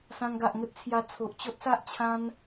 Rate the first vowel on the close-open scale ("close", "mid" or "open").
open